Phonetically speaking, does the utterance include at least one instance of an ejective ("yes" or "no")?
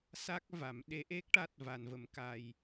no